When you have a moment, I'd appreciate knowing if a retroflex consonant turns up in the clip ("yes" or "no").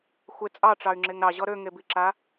yes